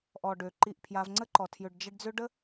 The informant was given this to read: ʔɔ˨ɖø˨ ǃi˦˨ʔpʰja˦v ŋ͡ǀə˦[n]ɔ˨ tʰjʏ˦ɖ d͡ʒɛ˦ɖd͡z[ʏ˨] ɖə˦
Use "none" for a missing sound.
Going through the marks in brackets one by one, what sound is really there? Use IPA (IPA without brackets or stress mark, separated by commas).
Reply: ǃ, ʏ˦